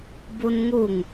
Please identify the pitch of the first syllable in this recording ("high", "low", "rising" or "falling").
high